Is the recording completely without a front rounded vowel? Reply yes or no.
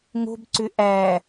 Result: no